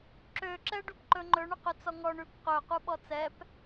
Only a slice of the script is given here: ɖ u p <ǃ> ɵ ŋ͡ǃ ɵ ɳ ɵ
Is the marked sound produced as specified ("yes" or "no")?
yes